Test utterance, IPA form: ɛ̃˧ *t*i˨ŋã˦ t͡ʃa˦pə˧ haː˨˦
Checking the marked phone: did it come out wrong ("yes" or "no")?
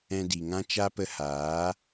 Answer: yes